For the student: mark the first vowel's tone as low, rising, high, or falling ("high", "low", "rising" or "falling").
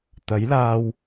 rising